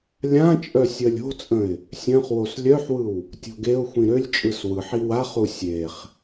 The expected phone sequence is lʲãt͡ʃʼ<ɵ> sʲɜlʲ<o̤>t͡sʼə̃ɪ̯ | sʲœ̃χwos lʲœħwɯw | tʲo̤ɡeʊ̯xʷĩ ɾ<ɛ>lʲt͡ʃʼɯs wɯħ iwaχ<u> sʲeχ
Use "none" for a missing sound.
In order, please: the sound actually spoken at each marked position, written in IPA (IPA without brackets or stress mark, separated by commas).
œ, o̤, ø, u